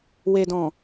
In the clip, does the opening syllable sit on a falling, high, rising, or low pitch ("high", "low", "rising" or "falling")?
low